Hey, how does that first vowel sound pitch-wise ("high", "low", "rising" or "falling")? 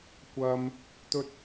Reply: high